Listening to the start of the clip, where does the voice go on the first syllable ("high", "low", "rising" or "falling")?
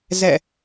falling